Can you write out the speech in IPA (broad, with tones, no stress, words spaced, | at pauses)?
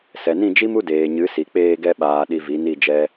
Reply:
sɛ˨nĩ˦˨d͡ʒi˦m u˦deː˨ɲɨ˨˦si˨ k͡peː˧ɡɛ˧ɓaː˨ ɗi˧vi˨˦ni˦˨d͡ʒɛ˦